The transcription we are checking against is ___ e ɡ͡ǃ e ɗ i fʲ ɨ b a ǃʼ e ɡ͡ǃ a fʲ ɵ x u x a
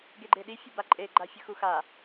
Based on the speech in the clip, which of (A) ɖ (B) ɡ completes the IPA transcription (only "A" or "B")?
B